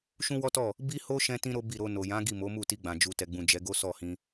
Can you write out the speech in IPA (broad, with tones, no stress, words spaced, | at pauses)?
ʃũ˦wɔ˦tɔ˦˨ | bi˦ho˦ ʃɛ̃˦tĩ˦ ɾo˦bi˦˨ɾo˧ no˨jã˨˦ ɡi˦˨mo˨˦mu˦˨ ti˧ɡ͡bã˨ d͡ʒu˨ tɛ˨ɡ͡bũ˨ d͡ʒɛ˨˦ɡo˦sɔ˦˨hĩ˧